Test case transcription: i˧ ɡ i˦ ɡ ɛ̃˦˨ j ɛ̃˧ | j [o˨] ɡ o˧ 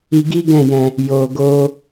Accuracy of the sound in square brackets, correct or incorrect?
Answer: correct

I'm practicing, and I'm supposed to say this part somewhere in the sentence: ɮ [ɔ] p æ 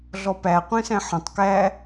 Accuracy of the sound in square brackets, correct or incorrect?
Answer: correct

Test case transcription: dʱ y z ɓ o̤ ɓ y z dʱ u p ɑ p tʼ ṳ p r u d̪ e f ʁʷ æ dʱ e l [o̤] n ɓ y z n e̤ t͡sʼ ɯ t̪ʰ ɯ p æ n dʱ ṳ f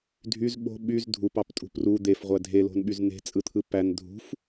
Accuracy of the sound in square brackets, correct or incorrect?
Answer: correct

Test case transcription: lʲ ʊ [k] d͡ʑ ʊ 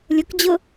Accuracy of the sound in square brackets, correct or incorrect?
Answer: correct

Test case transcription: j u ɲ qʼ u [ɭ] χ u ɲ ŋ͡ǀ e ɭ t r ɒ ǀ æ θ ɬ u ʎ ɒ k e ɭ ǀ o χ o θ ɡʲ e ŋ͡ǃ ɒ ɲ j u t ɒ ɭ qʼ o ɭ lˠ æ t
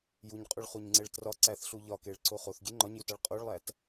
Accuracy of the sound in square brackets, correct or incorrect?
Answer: correct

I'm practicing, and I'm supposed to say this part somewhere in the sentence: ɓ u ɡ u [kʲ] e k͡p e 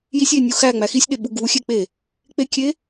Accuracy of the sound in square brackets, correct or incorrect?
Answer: incorrect: xʲ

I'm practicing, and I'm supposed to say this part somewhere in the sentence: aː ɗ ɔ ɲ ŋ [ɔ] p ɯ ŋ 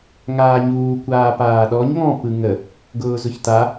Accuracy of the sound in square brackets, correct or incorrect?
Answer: incorrect: ɔ̃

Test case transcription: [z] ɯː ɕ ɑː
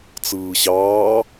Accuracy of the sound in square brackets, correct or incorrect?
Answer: incorrect: t͡s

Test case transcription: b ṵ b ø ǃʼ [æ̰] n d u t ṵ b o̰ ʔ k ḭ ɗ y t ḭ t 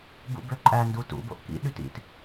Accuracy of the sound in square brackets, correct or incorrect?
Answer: incorrect: æ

